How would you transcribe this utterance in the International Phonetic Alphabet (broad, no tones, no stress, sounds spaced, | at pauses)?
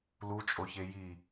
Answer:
l u t͡ʃʼ o ç e j i